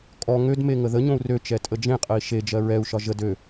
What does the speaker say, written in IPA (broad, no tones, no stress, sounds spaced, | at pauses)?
kʼ ɔ ŋ ø d m e ŋ ə ð ə ɲ õ u̯ r ø t͡ʃ ɛ tʼ ə d͡ʒ ẽ qʼ ə i̯ ʃ e d͡ʒ ɜ ɹ ɛ u̯ ʃ ɒ ʒ ə d ø